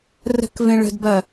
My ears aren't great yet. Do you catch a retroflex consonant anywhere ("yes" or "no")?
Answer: yes